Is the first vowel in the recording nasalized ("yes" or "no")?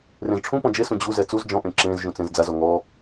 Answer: yes